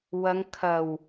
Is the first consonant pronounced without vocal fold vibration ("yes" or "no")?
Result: no